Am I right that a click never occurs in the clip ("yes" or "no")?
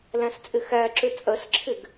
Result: no